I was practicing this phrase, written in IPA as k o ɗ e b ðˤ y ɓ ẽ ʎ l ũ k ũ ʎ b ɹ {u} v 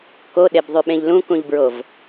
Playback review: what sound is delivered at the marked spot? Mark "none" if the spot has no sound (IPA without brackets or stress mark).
o